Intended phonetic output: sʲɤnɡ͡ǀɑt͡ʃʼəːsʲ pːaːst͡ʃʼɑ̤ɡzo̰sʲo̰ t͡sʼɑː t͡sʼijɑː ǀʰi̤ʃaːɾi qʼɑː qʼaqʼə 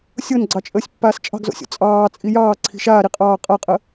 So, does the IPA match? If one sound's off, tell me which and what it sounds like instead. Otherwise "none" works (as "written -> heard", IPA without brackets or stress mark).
none